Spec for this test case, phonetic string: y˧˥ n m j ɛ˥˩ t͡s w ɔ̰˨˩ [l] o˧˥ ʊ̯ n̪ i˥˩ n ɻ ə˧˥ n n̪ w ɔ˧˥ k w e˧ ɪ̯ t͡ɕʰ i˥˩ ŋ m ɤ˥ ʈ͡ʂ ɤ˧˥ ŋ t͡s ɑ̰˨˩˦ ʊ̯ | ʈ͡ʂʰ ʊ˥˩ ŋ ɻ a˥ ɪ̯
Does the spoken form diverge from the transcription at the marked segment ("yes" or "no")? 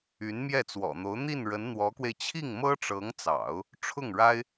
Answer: yes